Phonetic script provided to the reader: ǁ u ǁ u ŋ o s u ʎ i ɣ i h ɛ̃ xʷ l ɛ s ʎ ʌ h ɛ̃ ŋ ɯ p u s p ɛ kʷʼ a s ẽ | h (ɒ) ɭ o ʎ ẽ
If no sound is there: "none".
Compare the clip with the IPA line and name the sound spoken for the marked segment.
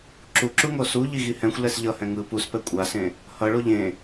ʌ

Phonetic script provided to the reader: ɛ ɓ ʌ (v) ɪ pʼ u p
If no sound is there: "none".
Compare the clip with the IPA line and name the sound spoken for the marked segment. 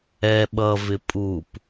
v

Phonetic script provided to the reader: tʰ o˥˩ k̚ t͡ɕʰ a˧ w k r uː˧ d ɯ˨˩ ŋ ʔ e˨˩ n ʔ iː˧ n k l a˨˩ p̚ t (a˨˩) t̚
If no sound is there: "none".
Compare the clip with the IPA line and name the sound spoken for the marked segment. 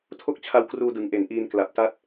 a˥˩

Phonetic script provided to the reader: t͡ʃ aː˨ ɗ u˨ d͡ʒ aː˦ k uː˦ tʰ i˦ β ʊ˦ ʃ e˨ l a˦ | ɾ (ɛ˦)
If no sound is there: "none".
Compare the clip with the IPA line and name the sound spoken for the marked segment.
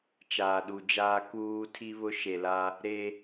e˦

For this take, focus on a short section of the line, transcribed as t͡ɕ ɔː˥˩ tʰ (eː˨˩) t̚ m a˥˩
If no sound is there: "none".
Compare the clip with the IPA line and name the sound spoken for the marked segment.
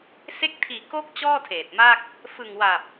eː˨˩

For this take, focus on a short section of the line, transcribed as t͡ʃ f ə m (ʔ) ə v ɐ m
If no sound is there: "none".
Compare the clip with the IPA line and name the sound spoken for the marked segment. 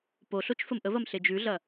ʔ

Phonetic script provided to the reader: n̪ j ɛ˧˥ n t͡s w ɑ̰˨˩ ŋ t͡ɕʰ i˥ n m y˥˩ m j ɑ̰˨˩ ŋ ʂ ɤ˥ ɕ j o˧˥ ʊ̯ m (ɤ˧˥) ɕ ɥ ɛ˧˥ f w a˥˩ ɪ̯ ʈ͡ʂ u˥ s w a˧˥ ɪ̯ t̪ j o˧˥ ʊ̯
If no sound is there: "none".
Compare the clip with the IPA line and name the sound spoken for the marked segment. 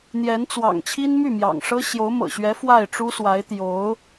ɤ̰˨˩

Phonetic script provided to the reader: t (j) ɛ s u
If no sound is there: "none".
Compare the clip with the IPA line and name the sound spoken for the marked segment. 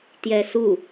j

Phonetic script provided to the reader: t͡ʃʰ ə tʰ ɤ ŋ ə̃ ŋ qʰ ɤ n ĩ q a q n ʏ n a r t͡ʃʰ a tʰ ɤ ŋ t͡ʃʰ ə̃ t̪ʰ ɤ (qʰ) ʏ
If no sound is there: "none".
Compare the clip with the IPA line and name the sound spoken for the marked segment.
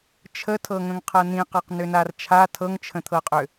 qʼ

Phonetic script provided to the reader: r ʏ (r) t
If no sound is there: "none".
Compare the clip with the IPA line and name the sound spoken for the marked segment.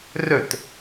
none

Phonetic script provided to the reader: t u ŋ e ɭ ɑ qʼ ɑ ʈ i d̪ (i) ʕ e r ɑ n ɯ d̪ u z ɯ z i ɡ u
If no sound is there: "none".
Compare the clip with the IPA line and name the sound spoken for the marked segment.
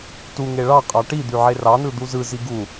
y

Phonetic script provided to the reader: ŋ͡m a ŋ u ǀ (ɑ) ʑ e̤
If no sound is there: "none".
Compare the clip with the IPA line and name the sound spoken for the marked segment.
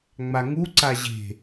a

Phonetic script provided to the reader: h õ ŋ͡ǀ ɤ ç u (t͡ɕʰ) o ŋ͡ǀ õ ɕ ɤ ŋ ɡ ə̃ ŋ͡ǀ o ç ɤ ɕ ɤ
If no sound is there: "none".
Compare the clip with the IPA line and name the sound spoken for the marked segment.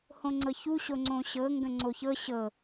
ɕ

